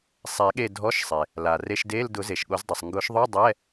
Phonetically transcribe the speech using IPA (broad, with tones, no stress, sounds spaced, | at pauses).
sˤ ɛ˨˩˦ ɠ e˦˨ dʱ ɔ˧˥˧ ʃ sˤ e˩ | l a˩ r e˧˥˧ ʃ d e˧˥˧ l d ʊ˨˩˦ z e˩ ʃ ɠ o˨˩˦ z dˤ i˩ sˤ ŋ ɡ ʊ˨˩˦ ʃ ðˤ ʊ˧˥˧ dˤ ɛ˧˥˧